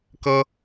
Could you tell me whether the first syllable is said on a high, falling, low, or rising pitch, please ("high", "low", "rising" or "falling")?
high